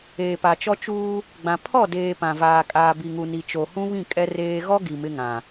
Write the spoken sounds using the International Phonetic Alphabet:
eː˨ p a˨ t͡ʃ ɔ˦ t͡ʃ uː˦ | ɡ͡b ã˨ pʰ ɔ˦˨ d eː˨ p ã˨ v aː˨ kʼ aː˨ b i˨ ŋ u˨ n i˨ t͡ʃ o˨ h ũ˦ β ĩ˦˨ kʼ ɛ˦ r eː˦ ɣ ɔ˦ ɡ i˨ m ɪ˦ ŋ ã˨

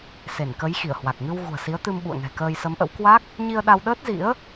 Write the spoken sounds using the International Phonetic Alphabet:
s e˧˩ n k ə˨˦ j x i˧˩ ə̯ h w a˨˩ k̚ ŋ ɨ˧ w ɣ ṳ˨˩ ə̯ s i˨˦ ə̯ t̪ ɨ˧ m ɓ ṵ˧˨ ə̯ ŋ ɛ̤˨˩ k əː˧ j s ə˨˦ m ʔ ə̰˧˥ w k w a˦˥ k̚ | ɲ i˧ ə̯ ɗ a˧ w ɗ əː˦˥ t̚ z ḭ˧˥ ə̯

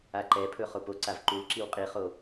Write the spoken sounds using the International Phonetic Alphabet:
a ǃ ɛ pʰ ɵ χ o p o ǀ a v ǃ u l ǁ i w qʼ i χ o

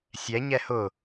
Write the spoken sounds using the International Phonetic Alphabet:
sʲ ɛ ɲ ɛ h ʊ

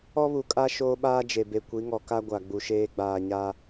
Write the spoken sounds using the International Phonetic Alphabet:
ɔ˦ β u˨ kʼ a˦ ʃ oː˦ ɓ aː˦ d͡ʒ e˨ b e˨ kʷ i˨˦ ŋ ɔ˨ k a˦ ɡʷ a˨ ɡ͡b u˨ ʃ eː˦ ɡ͡b aː˨ ɲ a˦

